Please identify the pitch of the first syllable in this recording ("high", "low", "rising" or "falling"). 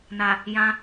low